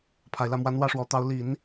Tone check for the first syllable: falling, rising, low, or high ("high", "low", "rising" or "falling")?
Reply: low